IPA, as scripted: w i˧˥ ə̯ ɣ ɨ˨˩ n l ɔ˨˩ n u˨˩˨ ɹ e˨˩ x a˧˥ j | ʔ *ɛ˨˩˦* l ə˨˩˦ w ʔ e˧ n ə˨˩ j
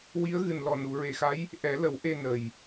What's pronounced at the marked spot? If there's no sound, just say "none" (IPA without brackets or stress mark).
ɛ˨˩˦